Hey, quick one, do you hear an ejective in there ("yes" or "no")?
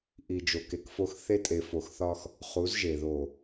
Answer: yes